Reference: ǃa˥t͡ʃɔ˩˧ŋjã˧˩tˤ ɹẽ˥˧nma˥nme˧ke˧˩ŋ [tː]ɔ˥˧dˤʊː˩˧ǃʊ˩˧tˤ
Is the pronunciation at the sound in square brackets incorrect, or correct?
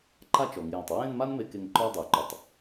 incorrect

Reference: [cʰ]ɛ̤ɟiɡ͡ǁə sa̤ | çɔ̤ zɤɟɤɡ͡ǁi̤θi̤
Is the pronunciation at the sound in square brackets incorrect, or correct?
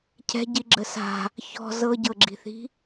correct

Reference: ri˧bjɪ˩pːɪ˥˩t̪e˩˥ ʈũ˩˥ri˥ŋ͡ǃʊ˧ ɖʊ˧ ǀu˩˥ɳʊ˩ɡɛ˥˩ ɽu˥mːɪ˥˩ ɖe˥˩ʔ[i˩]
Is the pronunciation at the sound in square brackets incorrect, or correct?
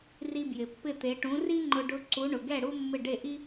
incorrect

